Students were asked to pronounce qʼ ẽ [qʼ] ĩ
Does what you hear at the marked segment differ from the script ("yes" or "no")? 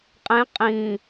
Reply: no